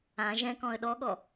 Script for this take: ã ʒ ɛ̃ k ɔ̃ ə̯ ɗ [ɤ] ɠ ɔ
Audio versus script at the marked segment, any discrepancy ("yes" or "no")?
yes